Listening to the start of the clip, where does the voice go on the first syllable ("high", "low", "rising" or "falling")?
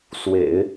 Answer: low